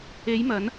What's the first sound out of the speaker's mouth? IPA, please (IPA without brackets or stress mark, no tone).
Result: e